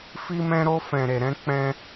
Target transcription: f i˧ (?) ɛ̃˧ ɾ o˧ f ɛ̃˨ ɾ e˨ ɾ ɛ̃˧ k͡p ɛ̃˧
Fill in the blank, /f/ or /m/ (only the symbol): m